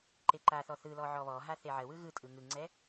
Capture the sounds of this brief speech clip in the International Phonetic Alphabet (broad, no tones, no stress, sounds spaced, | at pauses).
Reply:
ǃ e ǃ a θ ɔ θ ɯ l ɔ ʕ ɔ β ɔ ɦ a θ e ʕ ə w ɯ ɣ ɯ tʼ ɯ ŋ ɯ ŋ͡ǀ ɛ